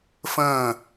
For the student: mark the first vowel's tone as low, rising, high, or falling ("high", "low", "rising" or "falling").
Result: falling